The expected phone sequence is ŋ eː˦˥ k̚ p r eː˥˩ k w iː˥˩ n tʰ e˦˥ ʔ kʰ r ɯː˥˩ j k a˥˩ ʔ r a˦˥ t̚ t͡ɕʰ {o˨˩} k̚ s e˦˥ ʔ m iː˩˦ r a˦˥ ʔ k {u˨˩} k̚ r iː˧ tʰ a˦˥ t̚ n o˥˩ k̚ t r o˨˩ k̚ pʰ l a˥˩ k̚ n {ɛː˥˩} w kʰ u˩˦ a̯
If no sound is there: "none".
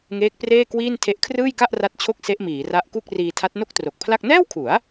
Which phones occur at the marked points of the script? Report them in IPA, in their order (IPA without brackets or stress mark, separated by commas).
o˦˥, u˥˩, ɛː˥˩